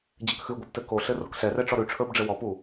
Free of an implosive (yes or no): yes